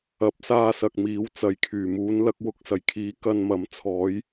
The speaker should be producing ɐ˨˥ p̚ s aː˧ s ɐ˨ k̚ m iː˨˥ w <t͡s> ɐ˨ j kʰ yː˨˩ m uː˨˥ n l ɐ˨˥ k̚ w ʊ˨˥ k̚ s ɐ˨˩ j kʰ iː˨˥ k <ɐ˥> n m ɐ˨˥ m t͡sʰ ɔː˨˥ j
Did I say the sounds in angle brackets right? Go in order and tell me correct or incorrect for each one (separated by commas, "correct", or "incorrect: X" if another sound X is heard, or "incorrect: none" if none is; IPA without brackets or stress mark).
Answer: correct, incorrect: ɐ˧